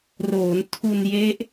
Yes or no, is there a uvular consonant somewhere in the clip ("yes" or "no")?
no